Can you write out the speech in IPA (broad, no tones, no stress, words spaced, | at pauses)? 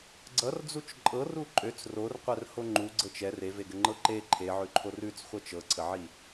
ɡ͡ǀʌrd͡zut͡ʃ ǃʼɤru ǃʼøt͡s rorqʷɛrho ŋ͡ǃuɡ͡ǀɤt͡ʃ ɛr eveɡəŋ͡ǃɤ ǃe ǃʰeʕʉǃʰor ʉt͡sχʷɤt͡ʃ ɤǀʰəʕi